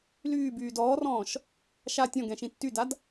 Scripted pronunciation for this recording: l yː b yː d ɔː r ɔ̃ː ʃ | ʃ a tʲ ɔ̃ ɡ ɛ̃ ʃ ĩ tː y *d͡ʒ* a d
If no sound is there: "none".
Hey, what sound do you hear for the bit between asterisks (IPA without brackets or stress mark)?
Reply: d